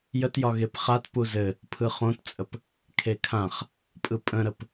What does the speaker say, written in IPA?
jətjɒ ɣepχat puzɘ | pʰɯχõtt͡sʼəp | kʰekʰãχ | pʼɯpʼə̃ɾəp

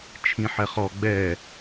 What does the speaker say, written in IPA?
t͡ʃʰĩħɛχɔ ɡ͡bɛ

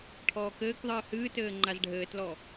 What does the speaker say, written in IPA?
ʈʰɔːkɘːkðˤɨː hɨːtɘː ŋ͡ǃazɖʱɘːtlɔ

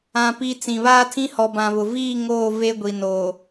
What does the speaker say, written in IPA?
ã˨ pi˨ t͡sĩ˨βaː˦tʰĩ˦ hɔ˨bã˨βʊ˨ viː˦˨ ŋoː˦˨ ve˦ɡʷi˨ noː˨

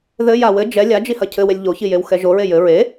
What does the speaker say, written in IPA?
ðɘ jawɘ d͡ʒɛ lʲad͡ʒihɐ cʰɘwelʲ ʎoçijew xɛʒoɹe jɘ ɹe

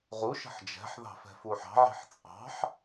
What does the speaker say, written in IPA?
ʁu ʃə̤ħd͡ʒɛ̤ħðɑ̤ fɛ̤fuħɑ̤ʕi̤ħ t͡sʼɑ̤ħ

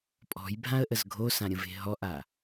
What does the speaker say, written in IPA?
pʼɔ̤jbʱãə̯ʔəz ɡʱosãɾʲə̃ve̤ ɦɔʔa

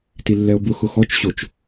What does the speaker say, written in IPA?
tilːɛo̯bʊ xʊxɔt͡ʃɕot͡ʃ

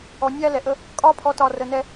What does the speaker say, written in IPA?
ɔ˨ nʲæː˦lɛ˨ʔə˦ | kʼɒː˦pʰɔ˨˦tɒː˨ rə˨nɛ˦

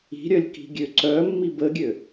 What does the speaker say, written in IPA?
i̤ɾʲœlʲki̤ɡʲø ǀœmːib əɡʲø

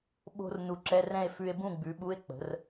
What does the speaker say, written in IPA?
ɓo̤˧r nu˧ǁɛ˧˥˧rɛ̃˥˨e̯ fʉ˧e̯ bũ˥˨ɡ͡bʉ˨˥ɓu˧˥˧e̯ k͡pə̤˨˥r

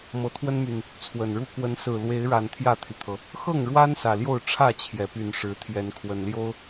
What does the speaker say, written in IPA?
mɤ˨˦t̪ʰwə˦nmy˨˩n | t͡sʰwə˨˩nɻu˦ kwə˨˦n sɹ̩˨˩ lwe˨˦ɪ̯ɻa˨˩n t̪ʰjä˥˨t̪ʰy˩t̪ʰɤ˩ | xɤ˥˨ŋɻwa˦n sä˨˩ljo˥˨ʊ̯ ʈ͡ʂʰä˥˨t͡ɕʰjɛ˩py˨˩n ʂɻ̩˨˦t̪ʰjɛ˨˦nkʰwə˨˩nljo˦ʊ̯

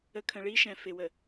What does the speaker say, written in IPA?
ə˨˦kʰə̃˨ɭi˦ʃɛ̃˨ fɪ˨wə˨

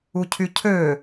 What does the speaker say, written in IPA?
ucʰycʰø

